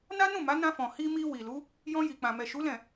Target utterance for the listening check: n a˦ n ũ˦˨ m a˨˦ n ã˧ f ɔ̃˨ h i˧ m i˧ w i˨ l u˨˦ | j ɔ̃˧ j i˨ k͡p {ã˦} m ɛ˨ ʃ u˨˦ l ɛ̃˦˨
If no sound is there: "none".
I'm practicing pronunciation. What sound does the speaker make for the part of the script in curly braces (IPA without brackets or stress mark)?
ã˨